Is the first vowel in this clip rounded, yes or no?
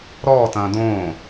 yes